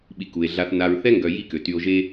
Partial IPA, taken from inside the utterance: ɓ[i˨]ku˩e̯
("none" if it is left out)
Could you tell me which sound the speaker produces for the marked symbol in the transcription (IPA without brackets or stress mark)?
i˨